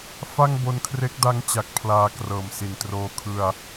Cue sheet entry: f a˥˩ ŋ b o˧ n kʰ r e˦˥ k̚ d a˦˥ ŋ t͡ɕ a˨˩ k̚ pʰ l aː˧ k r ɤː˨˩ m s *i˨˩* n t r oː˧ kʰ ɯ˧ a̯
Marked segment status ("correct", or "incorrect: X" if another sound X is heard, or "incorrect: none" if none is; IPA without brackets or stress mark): correct